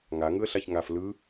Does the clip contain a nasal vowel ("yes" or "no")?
no